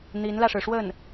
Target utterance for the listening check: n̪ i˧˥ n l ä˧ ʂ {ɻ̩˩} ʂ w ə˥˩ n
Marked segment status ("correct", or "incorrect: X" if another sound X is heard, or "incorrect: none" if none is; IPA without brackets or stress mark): correct